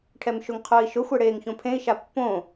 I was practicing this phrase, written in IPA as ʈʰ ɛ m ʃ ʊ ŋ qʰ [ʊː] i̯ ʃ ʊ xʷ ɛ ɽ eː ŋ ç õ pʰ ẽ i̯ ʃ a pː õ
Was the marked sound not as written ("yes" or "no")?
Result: no